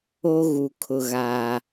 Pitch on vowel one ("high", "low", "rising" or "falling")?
high